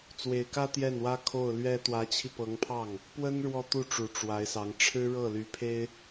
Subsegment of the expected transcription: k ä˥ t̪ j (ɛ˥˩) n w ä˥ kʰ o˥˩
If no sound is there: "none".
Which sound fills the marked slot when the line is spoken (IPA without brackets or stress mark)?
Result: ɛ˥˩